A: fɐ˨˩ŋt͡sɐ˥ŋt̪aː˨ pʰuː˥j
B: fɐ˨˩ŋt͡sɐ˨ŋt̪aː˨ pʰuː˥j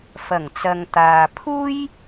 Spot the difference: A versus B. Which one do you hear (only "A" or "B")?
B